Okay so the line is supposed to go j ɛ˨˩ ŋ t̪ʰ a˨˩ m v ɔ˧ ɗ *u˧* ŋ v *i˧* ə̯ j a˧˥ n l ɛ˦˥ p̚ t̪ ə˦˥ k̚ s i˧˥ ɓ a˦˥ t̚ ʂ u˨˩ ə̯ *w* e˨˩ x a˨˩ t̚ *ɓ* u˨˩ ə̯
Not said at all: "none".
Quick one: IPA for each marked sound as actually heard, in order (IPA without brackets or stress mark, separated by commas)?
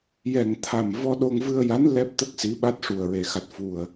o˧, ɨ˧, ɹ, f